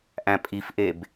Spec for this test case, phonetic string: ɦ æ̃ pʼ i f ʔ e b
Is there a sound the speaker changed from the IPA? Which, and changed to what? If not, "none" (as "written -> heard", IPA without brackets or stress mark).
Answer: ɦ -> ʔ